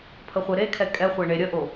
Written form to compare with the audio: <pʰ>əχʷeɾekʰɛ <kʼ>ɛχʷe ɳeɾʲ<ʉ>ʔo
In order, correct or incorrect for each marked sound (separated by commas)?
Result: correct, correct, incorrect